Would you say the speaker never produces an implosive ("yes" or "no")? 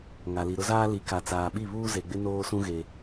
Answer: no